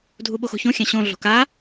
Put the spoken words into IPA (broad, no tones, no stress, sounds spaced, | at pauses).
dʱ u ɓ o x o̤ ç õ xʲ ã ɕ õ ɮ o̤ k a